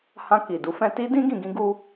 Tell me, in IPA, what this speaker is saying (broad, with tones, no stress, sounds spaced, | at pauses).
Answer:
h ã˧ k i˨ d u˨˦ f ɛ̃˧ t i˦ d ĩ˦ ɡ ĩ˧ ɡ ĩ˦ ɡ u˦